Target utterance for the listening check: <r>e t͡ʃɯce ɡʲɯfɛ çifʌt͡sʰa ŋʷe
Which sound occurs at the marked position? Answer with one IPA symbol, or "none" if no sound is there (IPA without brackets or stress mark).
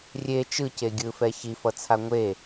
rʲ